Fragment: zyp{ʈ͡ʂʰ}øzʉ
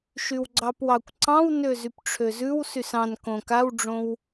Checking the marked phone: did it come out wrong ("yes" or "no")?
no